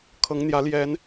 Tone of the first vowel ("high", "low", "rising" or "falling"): rising